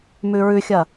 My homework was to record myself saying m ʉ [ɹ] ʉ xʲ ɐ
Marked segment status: correct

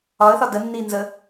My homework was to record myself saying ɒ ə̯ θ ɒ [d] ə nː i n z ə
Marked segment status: correct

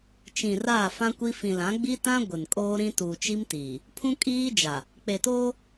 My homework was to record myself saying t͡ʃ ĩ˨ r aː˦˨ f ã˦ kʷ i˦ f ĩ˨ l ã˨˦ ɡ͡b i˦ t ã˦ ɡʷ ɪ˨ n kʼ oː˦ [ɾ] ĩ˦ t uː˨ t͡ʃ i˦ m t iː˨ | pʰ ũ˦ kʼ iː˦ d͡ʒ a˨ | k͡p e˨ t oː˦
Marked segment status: correct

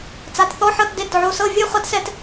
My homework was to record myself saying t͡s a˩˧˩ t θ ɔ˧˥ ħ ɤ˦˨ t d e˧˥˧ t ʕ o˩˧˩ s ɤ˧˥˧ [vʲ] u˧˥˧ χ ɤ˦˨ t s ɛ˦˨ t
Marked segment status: correct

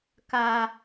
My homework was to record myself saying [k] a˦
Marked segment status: correct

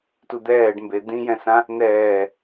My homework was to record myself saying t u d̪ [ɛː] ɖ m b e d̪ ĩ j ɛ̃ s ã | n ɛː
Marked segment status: correct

